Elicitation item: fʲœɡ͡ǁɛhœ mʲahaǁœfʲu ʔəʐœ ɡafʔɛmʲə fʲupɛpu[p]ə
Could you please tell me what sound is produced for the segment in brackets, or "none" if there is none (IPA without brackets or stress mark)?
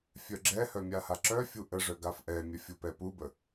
b